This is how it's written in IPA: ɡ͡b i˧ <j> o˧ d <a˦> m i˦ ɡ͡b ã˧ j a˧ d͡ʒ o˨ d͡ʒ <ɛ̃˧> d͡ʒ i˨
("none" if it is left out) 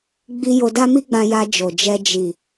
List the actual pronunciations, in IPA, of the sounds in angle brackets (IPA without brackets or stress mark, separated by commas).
j, a˦, ɛ˧